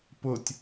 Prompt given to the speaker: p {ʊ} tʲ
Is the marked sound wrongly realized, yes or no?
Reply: no